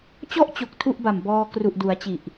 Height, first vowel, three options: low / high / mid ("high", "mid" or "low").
mid